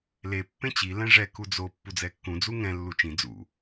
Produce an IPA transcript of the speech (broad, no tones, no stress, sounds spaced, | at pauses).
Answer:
l e pː ẽ t͡ɕ i l ɛ̃ ʐ ɛ k u d͡z o pː u d͡z ɛ kː ũ d͡z u ŋ ɛ̃ lː u t͡ʃ ĩ d͡z ṵ